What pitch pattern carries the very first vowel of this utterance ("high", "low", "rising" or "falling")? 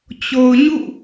low